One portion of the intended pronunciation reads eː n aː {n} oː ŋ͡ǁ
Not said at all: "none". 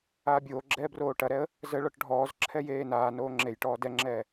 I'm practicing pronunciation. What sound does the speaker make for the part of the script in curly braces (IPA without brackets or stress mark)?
n